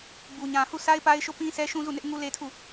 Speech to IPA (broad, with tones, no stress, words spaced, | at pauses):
bu˨ ɲã˨hu˦˨sa˦ɪ̯pa˦ɪ̯ ʃo˦˨pĩ˦ sɛ˦ʃũ˦zu˦˨nɪ˦ʔ ŋu˦le˦tʰu˦˨